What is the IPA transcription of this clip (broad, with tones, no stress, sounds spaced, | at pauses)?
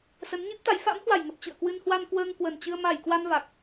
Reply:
s ə˨˦ n ɲ i˦˥ p̚ t̪ a˨˦ j f a̰˧˥ m h w a˧˩ j ŋ ə˨˩ p̚ t͡ɕ ɨ̰˧˨ ə̯ k w ɨ˧ n h w a˧ n k w əː˧ ŋ k w ə˨˩ n t͡ɕ ɨ˧ ə̯ m a˧˩ j k w a˧ n v a˨˩ k̚